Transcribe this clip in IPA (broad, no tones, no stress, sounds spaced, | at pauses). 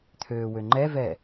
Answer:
t̪ʰ øː w ø ŋ͡ǃ ɛ v ɛ